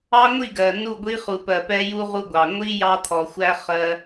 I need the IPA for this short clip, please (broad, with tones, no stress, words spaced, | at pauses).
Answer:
ɑ˦ŋʷi˦˨ɡɜ˨ nu˦˨ɡʷi˦χu˨pɜ˨ pɛ˦ju˦ ʁu˦ɡʷɑ˨ ŋʷi˦ jɑ˦t̪ʰɔ˨ xʷæ˦ χɜ˦